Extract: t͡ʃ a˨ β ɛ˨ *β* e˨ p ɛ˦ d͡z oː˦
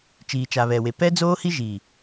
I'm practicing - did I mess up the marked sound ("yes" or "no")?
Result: yes